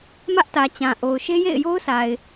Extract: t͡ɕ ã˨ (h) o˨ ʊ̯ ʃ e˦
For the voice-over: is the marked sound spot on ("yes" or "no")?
no